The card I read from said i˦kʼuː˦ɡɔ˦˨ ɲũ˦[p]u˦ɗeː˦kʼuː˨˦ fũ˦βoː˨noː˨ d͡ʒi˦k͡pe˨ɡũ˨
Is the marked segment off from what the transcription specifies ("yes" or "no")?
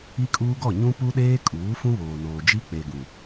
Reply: no